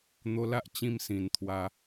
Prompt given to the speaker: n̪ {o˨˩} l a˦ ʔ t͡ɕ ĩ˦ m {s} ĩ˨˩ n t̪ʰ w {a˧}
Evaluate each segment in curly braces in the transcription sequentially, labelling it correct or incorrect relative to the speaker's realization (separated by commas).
incorrect, correct, correct